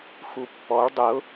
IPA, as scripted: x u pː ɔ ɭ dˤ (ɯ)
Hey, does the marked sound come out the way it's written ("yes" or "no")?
no